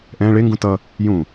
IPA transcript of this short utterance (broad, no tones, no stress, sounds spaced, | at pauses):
ʔ ɛ̃ ɭ e ŋ ɡ ũ t ʌ | j ũ